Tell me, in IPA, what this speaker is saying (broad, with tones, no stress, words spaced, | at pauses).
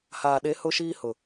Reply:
haː˨ɗe˨˦ hʊ˦ʃiː˦ hʊ˨